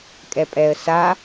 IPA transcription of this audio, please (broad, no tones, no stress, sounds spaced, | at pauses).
kʼ ɛ pʼ ɛ ə̯ s a